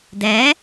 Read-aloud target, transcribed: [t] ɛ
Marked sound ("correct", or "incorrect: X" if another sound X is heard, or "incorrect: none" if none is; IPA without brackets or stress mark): incorrect: d